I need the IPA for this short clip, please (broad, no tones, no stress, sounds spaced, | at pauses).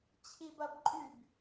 t͡ɕʰ i b ɐ b ǃʼ y b